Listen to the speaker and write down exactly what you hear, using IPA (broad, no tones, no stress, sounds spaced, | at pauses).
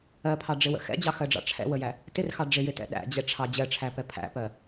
ɜ pʰ ɑ ɖ͡ʐ ɪ w ə̰ x ɛ̰ d͡ʑ ɑ x ɜ ɖ͡ʐ ɑ̰ ʈ͡ʂʰ ɛ̰ w ə j æ | t ɪ r x ɑ ɖ͡ʐ ɪ j ɪ t ɛ̰ ɗ æ̰ d͡ʑ ɛ ʈ͡ʂʰ ɑ d͡ʑ ɜ ʈ͡ʂʰ æ p ɛ pʰ æ̰ p ɜ